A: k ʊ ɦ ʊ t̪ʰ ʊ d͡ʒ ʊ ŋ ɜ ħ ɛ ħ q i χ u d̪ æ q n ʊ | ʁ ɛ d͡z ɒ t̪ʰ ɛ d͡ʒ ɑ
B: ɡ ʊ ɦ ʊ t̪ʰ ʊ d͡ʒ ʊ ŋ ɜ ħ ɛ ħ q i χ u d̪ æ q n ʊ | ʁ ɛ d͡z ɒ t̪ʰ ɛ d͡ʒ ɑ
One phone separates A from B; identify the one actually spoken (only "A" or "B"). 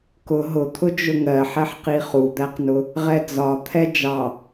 A